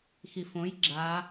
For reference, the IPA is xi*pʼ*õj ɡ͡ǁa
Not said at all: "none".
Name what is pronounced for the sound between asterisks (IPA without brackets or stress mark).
f